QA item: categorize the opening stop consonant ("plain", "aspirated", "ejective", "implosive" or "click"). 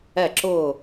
click